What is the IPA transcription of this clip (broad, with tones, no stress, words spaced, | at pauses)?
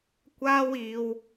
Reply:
kʷaː˧w iː˧w